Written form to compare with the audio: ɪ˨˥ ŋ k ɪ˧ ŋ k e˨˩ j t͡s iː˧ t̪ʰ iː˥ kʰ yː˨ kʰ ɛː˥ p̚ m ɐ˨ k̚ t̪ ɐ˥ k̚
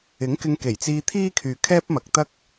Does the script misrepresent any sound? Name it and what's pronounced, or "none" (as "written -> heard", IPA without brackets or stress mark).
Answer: none